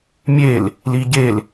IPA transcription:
mʲel | liɟel

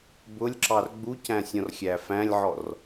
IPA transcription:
bʊlʲǁɑr ɡ͡bucæ̃ sʲɔ̃rxʲæfæ̃lʲʕɔr

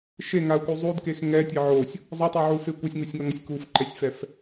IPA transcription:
ʃeŋau̯ku zˤudkex ŋɛtʲe ʕosʲ | zˤɯtˤuʕufe kʷʌsʲŋusʲŋʌŋʌsʲ kufǃɛsʲfɛf

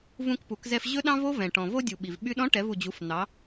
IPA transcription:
vũ˧kpu˩˧kzɛ˧f ʑɵ˥ ɗɑ̃˥vo˥ vɛ̃˩ ʈɔ̃˩vo˥dʲu˩ ɓi˩vɓy˥ ɗɔ̃˧˥ʈɛ˩˧vu˩d͡ʑu˩˧f n̪ɑ˩˧

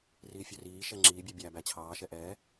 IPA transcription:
riːfʲøriː ʃɛŋ͡ǁiː bʲøbʲæ bæt͡ɕʰɑː ʃɛʔɛ

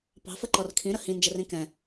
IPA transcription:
pɑ̤fəǃɔr kʰĩɾə hĩnd͡ʒərĩ kɛ̃

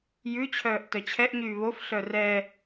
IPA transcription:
jʉt͡ɕʰœːʔ tœt͡ɕʰɛʔɲyː βof ɬœrɛ

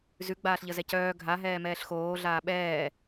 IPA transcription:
zʉ ɡ͡baːɬʎəzɛcœː ɡʱaɦɛːmɛːɬ xoː ɮaːɓɛː

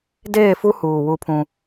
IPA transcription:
deː˦˨fu˦huː˨ wu˦pʰũ˦

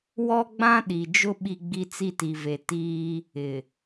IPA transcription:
wɔ˦ɡ͡bã˦ ɗi˨ d͡ʒʊ˦ ɓi˦ɡ͡bi˦t͡si˦ ti˨ve˨tiː˦ | ɪ˨

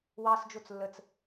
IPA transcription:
wɑsd͡ʒot͡s lːət͡s

